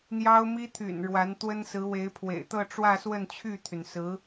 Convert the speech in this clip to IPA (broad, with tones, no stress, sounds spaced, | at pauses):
n̪ j ɑ˥ ʊ̯ m i˥ t̪ʰ y̰˨˩ n ɻ w a˧˥ n t̪ w ə˥ n s ɹ̩˧˥ w e˧˥ ɪ̯ pʰ w ḛ˨˩ ɪ̯ t̪ ɤ˥˧ ʈ͡ʂ w ä˥˧ s w ə˥˧ n t͡ɕʰ y˥˩ t̪ʰ y˩ n s ɹ̩˧˥